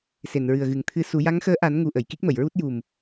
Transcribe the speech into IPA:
se˨˩˨nɹɨ˨˩ə̯ ɣɨ˨˩ŋt̪ʰɨ˧su˨˩˦ ja˧˥ŋxəː˧˥ʔa˨˩˦nŋu˨˩ ʔə˨˩˨jki˦˥k̚mə˨˩˨jɹu˦˥t̚ ju˨˩m

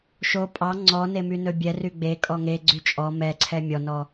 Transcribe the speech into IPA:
ʃo pʼɑ ŋ͡ǀɔ nemynɵbʲɛ ryɡ͡be kʼɔŋeɡ͡ǀy t͡ʃʼɔ mɛǀʰɛ mʲɔnɔ

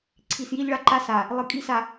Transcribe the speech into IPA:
ǀʰi˨sji˦ʎɭa˦ ǃa˦sa˨ | lˠɨ˨kʼi˦sa˨

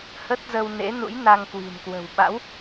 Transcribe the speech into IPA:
hə˦˥t̚zə˧wnḛ˧˥ nṵ˧˥jna˧ŋkwi̤˨˩nkwə̤˨˩w ɓa̰˧˥w

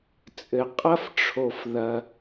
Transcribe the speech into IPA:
t͡sʼɘ˧ qʼɐ˥fʈ͡ʂʰo˧f ðɐ˧

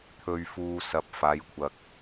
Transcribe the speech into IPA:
t̪ʰɵ˨ɥfuː˨ sɐ˨p̚ faː˨˧jkʷʰɐ˨k̚

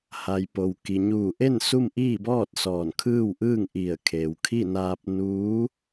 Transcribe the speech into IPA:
ha˩j po˩w ki˩ɲuː˧˩ʔe˥˨n su˥˨mʔiː˥˨bɔː˥˨t̚ sɔː˧˩nkʰɯː˥˨wʔɯː˥˨ŋ ʔi˧˩ə̯kʰeː˩wkʰi˥˨ naː˧p̚nuː˧˥

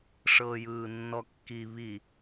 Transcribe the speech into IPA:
ʂɤːjɯːnːɔkːi βi

